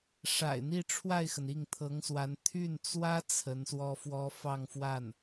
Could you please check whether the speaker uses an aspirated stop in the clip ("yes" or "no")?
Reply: yes